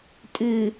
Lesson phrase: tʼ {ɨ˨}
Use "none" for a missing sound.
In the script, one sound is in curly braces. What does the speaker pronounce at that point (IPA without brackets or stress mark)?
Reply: ɨ˨